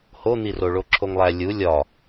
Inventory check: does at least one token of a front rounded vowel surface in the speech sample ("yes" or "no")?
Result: no